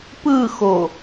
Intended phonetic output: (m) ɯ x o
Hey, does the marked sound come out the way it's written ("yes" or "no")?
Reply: no